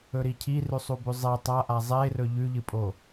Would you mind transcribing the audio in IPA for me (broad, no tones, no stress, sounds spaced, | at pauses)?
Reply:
ɵ ɾ i cʰ i r ʉ sˤ u b ʉ zˤ e tˤ a ʔ a zˤ e r ɵ ʎ ʉ ʎ ɨ pʼ o